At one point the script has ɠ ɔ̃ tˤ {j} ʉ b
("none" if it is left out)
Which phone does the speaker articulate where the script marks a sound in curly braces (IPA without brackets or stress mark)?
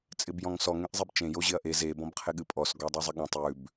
j